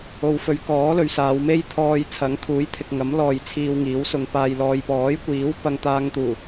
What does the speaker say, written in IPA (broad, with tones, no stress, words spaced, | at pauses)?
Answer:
o˨wfɵ˨˧ɥ kɔː˨˥lɵ˨˧ɥsaː˨˧wme˥j t̪ʰɔː˧jt͡sʰɐ˨˥ŋt̪ʰuː˨˥jt̪ʰɪ˨k̚ ŋɐ˨˥mlɔː˨j t͡sʰiː˧wŋiː˨˥wsʊ˧ŋpaː˧j lɔː˨jpɔː˨˥jkʷiː˨˥w pɐ˧ŋt̪aː˧ŋ t̪uː˨˩